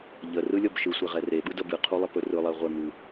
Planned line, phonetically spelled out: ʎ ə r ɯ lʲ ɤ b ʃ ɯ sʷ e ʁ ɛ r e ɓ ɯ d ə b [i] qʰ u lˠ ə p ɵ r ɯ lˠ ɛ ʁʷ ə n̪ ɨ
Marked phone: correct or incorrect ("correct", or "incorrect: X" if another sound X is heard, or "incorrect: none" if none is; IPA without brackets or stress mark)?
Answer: incorrect: ɨ